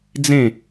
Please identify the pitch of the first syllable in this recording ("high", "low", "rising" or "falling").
falling